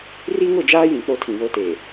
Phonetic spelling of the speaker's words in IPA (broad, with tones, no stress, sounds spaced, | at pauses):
r i˦ ŋ ʊ˦˨ d͡ʒ aː˦ j ĩ˨ k͡p o˦ tʰ ĩ˨ β o˦ t eː˨